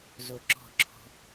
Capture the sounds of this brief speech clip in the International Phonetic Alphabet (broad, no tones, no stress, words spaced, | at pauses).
zoǁɔ̤ǁʰɔ̤